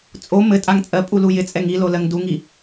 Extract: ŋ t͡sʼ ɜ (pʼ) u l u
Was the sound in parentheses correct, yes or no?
yes